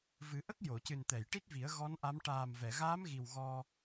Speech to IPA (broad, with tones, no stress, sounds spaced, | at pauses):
v ɨ˨˩˦ ʔ ə˦˥ k̚ j o˨˩˨ c ɨ˨˩ n t̪ ɛ˨˩˨ j ʈ i˦˥ t̚ v i˨˩˦ ə̯ ɣ ɔ˧˥ n ʔ a˧˥ m ʈ aː˨˩ m v ɛ˨˩˨ ɣ aː˧˥ m ɣ i˨˩ w ɣ ɔ˧